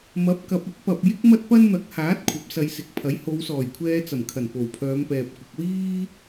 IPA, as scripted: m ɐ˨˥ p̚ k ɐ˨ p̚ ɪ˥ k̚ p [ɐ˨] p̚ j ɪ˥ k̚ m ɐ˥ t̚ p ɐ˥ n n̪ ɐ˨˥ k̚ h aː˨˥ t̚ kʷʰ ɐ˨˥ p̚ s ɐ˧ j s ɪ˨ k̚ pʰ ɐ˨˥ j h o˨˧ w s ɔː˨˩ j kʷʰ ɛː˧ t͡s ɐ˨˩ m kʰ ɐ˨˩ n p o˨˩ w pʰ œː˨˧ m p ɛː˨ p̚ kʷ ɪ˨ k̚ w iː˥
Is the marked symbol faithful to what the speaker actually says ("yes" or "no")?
yes